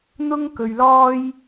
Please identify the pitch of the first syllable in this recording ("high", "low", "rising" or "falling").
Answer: high